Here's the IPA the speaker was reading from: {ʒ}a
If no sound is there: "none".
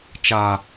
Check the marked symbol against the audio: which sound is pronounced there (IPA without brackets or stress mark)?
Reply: t͡ʃ